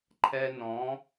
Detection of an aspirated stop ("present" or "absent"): present